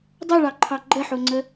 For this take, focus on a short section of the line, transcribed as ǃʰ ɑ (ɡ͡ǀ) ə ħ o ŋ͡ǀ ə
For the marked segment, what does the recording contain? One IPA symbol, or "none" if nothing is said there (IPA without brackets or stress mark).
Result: ɡ͡ǃ